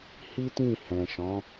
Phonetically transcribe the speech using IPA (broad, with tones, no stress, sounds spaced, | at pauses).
h i˦ t ĩ˦˨ h ɛ̃˨ ʃ ɔ̃˨˦